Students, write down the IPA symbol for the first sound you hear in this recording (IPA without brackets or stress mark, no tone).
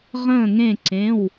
ʁ